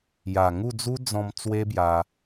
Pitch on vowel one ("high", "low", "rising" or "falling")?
low